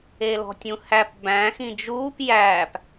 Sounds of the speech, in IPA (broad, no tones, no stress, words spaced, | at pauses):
elɔ̤tʲũhæp bæ̃ xĩd͡ʒuːp jæːp